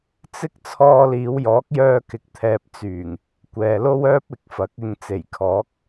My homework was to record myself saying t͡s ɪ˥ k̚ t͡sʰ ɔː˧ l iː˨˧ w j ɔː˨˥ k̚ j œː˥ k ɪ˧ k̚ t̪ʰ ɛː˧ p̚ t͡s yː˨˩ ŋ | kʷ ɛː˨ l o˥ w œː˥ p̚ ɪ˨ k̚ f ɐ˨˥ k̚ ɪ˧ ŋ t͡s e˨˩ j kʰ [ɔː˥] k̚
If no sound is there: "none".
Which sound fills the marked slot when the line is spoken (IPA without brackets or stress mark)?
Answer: ɔː˨˥